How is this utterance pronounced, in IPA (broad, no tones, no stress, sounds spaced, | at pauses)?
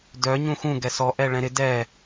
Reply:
d œ ɲ ũ x ũ ɡ ɛ s ɔ ʔ ɛ ɭ ɛ̃ ɾ ɪ d ɛ